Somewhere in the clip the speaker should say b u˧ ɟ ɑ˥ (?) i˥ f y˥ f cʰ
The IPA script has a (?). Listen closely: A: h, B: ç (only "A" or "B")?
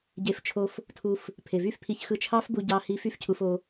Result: A